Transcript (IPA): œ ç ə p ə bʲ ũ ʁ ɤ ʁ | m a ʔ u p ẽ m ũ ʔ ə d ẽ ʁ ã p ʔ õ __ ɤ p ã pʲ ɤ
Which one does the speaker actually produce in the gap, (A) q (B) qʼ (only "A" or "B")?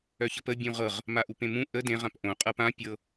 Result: B